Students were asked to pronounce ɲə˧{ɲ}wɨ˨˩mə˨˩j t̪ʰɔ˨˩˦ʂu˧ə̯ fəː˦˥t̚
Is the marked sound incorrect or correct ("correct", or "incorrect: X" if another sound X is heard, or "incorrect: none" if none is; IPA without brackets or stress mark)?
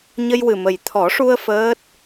incorrect: j